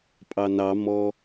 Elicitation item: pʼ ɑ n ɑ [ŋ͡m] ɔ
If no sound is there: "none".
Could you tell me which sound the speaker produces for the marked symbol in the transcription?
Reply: m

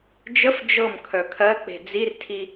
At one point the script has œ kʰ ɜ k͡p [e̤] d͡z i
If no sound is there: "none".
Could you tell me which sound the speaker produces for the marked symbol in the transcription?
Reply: e̤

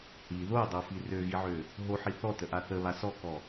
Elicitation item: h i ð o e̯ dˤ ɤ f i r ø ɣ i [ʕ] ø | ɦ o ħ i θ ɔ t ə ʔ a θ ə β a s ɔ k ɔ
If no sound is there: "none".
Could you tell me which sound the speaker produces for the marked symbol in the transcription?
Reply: ʕ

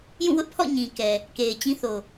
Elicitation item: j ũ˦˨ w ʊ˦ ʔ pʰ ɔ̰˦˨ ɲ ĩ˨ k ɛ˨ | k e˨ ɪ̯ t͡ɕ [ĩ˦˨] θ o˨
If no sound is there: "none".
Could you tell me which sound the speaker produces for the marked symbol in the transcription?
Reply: ĩ˦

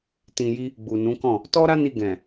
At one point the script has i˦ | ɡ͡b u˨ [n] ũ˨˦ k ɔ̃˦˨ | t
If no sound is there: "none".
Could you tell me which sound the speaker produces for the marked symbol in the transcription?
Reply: n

